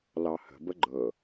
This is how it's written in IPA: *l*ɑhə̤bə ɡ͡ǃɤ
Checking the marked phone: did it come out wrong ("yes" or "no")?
no